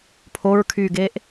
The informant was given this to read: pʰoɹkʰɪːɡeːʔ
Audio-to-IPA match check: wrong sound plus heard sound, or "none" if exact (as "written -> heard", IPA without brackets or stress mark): ɪː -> yː